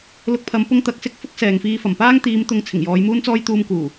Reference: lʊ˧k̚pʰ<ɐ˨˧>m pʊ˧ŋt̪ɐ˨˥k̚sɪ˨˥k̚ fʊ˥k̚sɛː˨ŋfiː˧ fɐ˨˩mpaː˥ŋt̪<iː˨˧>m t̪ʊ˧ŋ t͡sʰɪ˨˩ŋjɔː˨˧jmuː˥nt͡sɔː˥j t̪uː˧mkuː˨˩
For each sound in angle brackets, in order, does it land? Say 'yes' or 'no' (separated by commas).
yes, yes